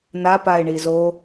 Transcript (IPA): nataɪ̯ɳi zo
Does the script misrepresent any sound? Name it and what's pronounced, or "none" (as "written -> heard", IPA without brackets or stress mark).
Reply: t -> p